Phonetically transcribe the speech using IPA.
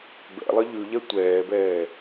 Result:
b ɛ̰ lˠ ə ʎ ʉ ʎ ɛ tʷ ɛː b ɛː

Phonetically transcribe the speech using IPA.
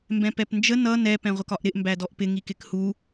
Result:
m b ɛ̃ p ɛ p n d͡ʒ ə n ʌ n ɛ p ɛ̃ ʁʷ ə k ɒ ʔ ɾ ɪ ʔ m b æ d ɔ ʔ p ɪ ŋ i k ɪ k h u

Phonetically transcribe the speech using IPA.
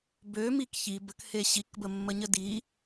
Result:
b ø m i k ç i b ə k h e ɕ i k b ə mː ə ɲ ə d i

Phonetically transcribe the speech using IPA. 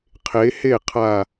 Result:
qʰ e˨˦ h e˥˩ qʰ a˧˩

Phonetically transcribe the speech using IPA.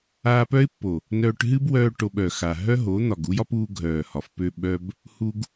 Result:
aː˧ p œ˦ ɪ̯ pː o˨ | n œː˧ ʈ ɦ ɨ˦ b w œː˧ ʈ o˧ ɓ œ˨ x a˨ ɦ œ˦ ɦ o˨˦ n̪ ɒ˨ ɡ u˦ j ɒ˦ p uː˧ ɡʱ œː˨ h ɒ˨ f p ø˧ ɓ œ˧ b | h u˧ ɡ

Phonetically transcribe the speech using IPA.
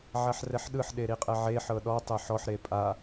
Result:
ʕ a ħ r ɛ ħ ɗ ɯ ħ ɗ e ɾ i qʼ ɛ ʕ e ħ ɤ ɗ ɔ tˤ e ħ ɔ ħ ɾ e pʼ a

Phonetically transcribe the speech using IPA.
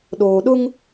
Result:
ɗ oː˨ ɗ ʊ˦ ŋ

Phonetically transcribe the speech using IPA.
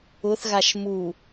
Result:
ʊ θ ɣ a ʃ m u

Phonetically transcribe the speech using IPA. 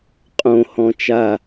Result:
qʼ õ h ɔ̃ t͡ʃ a

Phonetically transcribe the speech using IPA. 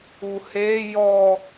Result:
u h e j ɔ

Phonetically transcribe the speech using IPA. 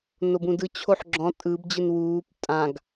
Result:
n o b ũ d ɯ t͡ɕʰ o ħ ɡ͡ǁ ɔ̃ tʼ ɯ b d͡ʑ ɯ n w uː p tʼ ã ɡ

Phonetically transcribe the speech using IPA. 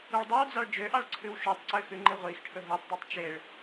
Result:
u ɭ dˤ œ w d͡z ɑ ɭ d͡ʒ ø ʔ ɑ ɭ ǀʰ ʉ w ʃ u tˤ ǀ ø x ʉ ŋ͡ǃ i ʁʷ i x ʈʰ ɵ ɦ o tˤ dˤ u tˤ t͡ʃ e ɭ

